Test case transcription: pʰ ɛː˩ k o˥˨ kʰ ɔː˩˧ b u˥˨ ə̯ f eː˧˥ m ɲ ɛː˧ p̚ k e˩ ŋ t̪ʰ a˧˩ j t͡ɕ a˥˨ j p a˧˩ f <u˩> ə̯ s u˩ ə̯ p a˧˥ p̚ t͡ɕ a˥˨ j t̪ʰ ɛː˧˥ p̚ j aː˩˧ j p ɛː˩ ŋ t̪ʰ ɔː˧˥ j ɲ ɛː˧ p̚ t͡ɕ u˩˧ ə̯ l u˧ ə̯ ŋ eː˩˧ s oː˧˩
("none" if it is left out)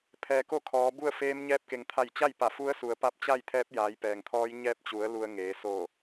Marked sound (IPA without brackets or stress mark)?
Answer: u˧˥